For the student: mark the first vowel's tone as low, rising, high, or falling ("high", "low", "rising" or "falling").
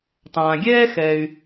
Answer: low